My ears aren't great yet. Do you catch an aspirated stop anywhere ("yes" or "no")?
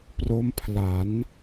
yes